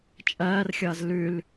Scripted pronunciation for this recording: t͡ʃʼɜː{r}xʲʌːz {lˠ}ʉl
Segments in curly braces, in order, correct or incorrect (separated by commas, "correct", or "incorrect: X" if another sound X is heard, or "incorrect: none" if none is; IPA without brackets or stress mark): correct, incorrect: l